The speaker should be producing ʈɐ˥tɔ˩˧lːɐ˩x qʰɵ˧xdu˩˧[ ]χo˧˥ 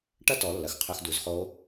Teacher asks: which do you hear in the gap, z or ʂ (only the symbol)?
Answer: z